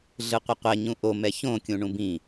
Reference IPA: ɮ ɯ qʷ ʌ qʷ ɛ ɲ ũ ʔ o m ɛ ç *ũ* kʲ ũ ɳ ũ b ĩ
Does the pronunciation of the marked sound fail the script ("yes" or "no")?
yes